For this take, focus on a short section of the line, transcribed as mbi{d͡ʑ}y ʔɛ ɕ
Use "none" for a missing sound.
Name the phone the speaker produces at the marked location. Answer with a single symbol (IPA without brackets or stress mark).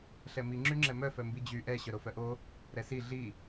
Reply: d͡ʑ